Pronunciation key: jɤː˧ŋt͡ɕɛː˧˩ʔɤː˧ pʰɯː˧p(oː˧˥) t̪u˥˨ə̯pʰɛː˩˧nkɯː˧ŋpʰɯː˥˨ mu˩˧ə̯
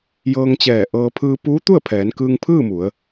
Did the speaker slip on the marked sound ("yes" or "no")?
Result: yes